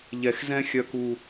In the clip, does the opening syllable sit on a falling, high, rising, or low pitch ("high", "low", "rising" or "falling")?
low